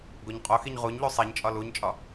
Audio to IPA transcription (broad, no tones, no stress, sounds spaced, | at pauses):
ɡ o ɲ qʼ o x i ɲ ʁ u ɲ ʎ u sˤ e ɲ t͡ʃʼ ɒ l u ɲ t͡ʃʼ ɒ